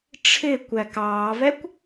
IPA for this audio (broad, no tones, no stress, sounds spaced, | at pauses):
ʈ͡ʂʰ ɪ kʷ æ k ɑː v ɛ kʷ